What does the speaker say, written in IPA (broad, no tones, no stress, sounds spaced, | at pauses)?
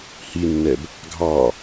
h i nː ɛ b | ɡʱ ɑ